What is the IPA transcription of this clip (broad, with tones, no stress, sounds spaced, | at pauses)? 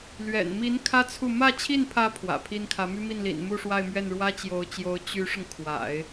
l ɥ ɛ̰˨˩ n m i˧˥ n kʰ ä˥ t͡sʰ u˥˧ m ä˥˧ t͡ɕʰ i˥˩ n pʰ ä˧˥ pʰ w ä̰˨˩ pʰ i˥ n kʰ ä˧˥ m y˥ m i˥˩ n l ḭ˨˩ n m u˥˧ ʂ w a˥˧ ɪ̯ m ɥ ɛ˥˩ n ɻ w ä˥ t͡ɕ j o˧˥ ʊ̯ t͡ɕ j o˧˥ ʊ̯ t͡ɕ y˧˥ ʂ ʊ˧ ŋ kʰ w a̰˨˩˦ ɪ̯